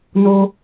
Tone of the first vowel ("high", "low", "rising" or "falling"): low